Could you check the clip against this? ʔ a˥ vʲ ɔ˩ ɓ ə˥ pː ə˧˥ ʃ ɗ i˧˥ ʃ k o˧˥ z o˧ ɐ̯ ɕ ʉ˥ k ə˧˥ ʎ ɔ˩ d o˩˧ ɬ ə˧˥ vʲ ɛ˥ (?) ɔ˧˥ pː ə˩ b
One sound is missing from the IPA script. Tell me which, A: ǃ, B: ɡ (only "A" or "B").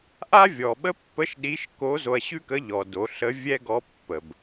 B